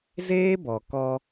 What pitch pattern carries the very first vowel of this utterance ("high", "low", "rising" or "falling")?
high